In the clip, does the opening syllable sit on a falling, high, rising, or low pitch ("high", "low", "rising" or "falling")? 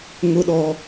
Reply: high